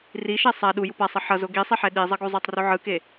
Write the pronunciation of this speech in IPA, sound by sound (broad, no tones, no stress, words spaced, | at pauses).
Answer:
riʃɛ sˤa ɗuju pasˤʌ ħʌzo ɡisˤiħɛ ɗizˤʌɡuzˤotˤ ruʕɯke